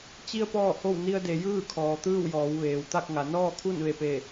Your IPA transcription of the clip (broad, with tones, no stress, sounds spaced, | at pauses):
t͡ɕ i˧ ə̯ p ɔː˥˨ h o˥˨ w n i˧ ə̯ d e˩˧ j ɯː˥˨ kʰ ɔː˩ t̪ ɯː˥˨ w j ɔː˩˧ w ʋ eː˩ w t̪ a˥˨ k̚ ŋ a˩˧ n ɔː˥˨ kʰ u˥˨ n ʋ e˧˩ p e˧˩